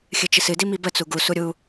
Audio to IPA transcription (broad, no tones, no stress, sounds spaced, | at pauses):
xʲ ɨ t͡ʃ ɨ s ɨ d i m i b ə t͡s u ɡ u s u ɾʲ u